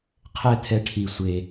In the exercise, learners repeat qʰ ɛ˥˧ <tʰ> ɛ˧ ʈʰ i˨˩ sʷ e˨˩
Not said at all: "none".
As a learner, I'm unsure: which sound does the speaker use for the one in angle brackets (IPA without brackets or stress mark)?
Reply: tʰ